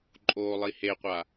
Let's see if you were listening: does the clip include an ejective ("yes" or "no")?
yes